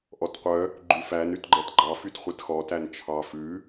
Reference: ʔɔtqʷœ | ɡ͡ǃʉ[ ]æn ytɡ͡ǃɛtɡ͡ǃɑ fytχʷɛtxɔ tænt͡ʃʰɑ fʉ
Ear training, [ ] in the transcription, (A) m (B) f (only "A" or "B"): B